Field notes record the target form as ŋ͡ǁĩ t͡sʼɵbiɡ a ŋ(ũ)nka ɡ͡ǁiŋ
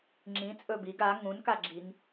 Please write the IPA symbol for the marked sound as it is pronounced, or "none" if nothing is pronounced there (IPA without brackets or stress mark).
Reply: ũ